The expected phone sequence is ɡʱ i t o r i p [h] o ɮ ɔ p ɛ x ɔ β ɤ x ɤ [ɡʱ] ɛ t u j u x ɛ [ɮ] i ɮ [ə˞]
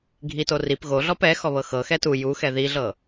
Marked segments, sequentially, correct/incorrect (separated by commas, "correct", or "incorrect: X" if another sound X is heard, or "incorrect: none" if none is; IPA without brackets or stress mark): incorrect: ɣ, incorrect: x, incorrect: ð, incorrect: ɤ